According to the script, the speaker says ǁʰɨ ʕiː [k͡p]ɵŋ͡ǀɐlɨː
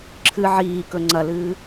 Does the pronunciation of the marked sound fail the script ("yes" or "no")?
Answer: yes